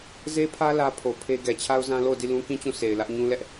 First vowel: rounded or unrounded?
unrounded